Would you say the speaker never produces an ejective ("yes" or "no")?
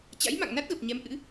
yes